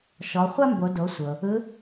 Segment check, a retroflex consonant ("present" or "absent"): absent